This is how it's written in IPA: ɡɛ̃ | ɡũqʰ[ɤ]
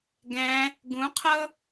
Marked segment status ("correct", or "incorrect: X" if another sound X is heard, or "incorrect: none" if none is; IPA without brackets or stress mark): correct